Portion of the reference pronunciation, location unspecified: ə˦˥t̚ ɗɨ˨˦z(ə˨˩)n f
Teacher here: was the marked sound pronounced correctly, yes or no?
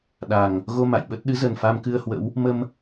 yes